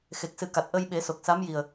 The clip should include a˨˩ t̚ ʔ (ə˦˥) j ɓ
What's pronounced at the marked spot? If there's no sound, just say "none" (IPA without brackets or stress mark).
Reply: ə˧